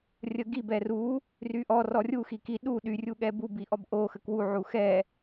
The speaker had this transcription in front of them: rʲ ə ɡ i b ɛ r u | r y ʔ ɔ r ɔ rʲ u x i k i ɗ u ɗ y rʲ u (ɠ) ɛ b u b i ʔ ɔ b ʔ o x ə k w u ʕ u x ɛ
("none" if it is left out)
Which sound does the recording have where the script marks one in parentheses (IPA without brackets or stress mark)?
ɠ